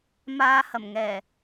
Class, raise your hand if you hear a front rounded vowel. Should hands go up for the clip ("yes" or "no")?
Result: no